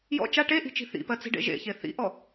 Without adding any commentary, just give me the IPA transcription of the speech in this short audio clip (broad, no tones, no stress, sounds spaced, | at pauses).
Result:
j ɔ̰ t͡ʃ a ʈ e ʔ i̤ t͡ʃ i̤ θ ḭ p ɜ t͡s i̤ ɖ ḛ ʒ ḛ ç e θ ḭ ʔ ɔ